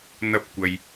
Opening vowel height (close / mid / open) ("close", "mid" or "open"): open